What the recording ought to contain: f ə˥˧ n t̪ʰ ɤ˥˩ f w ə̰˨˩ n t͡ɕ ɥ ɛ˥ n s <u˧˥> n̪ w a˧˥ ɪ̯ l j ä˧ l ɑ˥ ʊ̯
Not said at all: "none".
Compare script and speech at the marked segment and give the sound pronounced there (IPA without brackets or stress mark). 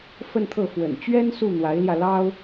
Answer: u˥˩